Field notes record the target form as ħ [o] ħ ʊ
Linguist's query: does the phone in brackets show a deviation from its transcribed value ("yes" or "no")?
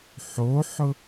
no